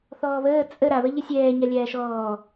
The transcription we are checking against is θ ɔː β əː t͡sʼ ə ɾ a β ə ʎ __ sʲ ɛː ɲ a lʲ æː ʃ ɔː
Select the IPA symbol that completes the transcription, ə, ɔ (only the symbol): ə